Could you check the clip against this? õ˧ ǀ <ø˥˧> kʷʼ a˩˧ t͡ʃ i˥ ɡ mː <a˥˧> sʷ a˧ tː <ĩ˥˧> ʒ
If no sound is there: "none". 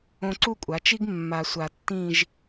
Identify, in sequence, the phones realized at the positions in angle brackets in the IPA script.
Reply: u˥˧, a˧, ĩ˥˧

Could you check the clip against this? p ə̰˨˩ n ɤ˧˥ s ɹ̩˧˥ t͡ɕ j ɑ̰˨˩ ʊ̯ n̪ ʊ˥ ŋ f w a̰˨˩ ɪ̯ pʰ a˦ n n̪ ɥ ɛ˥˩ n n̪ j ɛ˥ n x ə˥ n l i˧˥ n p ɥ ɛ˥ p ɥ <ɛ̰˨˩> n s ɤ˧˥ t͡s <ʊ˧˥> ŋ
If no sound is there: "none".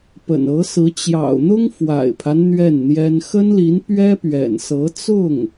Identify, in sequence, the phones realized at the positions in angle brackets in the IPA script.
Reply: ɛ̰˨˩, ʊ˥˩

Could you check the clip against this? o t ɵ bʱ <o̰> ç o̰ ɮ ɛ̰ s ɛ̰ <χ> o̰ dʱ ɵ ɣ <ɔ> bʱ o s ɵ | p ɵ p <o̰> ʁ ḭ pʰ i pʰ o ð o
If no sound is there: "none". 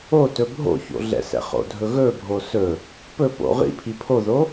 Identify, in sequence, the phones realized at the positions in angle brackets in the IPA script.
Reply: o̰, χ, ɵ, o̰

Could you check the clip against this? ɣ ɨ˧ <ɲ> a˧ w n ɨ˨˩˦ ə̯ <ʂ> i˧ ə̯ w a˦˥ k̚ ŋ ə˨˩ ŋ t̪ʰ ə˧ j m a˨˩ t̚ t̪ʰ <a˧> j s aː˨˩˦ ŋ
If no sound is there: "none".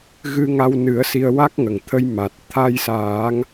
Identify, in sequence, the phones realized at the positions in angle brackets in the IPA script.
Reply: ŋ, s, a˧

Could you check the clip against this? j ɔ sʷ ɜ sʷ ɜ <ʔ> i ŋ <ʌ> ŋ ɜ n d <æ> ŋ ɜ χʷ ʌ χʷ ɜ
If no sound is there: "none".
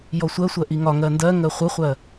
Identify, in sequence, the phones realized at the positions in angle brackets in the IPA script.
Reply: ʔ, ɒ, ɜ

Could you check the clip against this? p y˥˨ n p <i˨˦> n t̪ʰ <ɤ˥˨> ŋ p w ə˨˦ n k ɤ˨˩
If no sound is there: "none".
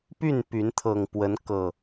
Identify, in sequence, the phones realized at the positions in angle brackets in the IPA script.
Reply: y˨˦, ɤ˨˩

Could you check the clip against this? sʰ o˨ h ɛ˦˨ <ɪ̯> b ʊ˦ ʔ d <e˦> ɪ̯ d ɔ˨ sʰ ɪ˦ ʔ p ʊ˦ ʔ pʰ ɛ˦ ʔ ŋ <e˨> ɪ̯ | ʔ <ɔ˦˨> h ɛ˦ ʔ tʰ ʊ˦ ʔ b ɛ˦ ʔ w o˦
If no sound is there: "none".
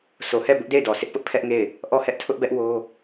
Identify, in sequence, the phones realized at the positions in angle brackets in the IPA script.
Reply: none, e˦˨, e˦˨, ɔ˦˨

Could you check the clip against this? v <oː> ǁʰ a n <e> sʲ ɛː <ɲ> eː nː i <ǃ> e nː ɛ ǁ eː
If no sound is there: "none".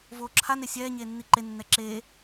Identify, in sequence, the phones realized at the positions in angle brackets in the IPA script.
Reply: oː, e, ɲ, ǃ

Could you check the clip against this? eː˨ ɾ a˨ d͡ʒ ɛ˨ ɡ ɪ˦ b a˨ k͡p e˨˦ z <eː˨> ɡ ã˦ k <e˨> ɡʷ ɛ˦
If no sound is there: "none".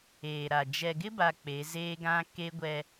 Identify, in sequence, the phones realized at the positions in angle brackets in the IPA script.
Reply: eː˦, e˦

